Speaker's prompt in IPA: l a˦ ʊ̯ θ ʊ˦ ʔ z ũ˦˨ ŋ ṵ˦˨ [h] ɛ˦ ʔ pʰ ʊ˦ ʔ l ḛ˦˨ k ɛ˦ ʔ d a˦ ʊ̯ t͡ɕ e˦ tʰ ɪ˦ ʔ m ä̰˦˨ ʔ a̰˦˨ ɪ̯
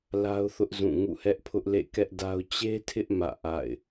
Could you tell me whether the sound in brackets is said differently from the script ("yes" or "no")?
no